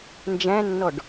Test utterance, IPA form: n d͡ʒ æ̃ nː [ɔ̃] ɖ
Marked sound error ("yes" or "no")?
yes